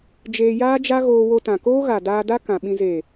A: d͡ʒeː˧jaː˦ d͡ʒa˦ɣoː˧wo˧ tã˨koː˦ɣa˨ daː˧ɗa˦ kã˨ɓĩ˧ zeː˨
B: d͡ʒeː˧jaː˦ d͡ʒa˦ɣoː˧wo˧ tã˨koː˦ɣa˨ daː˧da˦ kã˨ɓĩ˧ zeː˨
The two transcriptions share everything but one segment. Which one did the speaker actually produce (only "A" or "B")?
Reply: B